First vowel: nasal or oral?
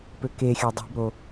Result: oral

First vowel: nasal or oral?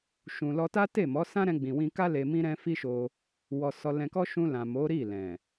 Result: nasal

